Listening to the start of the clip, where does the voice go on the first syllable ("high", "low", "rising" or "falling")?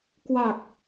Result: low